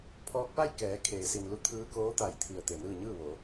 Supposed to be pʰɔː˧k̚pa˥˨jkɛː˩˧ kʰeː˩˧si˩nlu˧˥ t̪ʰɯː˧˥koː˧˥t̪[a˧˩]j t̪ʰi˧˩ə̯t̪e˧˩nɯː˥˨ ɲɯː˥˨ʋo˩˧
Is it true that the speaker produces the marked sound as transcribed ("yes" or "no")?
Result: yes